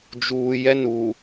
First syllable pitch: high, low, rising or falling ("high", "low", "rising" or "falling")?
low